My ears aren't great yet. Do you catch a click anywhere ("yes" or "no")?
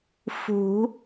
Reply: no